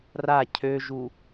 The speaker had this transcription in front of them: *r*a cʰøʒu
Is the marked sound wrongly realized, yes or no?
no